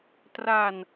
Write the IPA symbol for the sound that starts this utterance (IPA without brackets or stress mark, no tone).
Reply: t